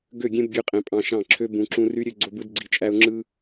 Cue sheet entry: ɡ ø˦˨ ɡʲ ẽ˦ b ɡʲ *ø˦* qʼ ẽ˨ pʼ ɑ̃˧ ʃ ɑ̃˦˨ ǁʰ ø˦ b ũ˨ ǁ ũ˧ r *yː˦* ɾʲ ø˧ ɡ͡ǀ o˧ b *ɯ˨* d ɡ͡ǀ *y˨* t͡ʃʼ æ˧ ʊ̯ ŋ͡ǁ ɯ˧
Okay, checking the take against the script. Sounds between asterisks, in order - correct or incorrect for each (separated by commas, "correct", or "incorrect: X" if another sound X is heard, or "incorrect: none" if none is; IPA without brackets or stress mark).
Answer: incorrect: ø˧, incorrect: y˦, incorrect: ɯ˧, incorrect: i˨